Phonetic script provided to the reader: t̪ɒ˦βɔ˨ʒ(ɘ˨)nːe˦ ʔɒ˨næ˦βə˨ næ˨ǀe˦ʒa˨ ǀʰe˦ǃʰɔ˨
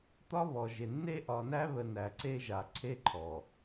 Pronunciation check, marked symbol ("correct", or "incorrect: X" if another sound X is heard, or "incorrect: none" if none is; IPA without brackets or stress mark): incorrect: e˨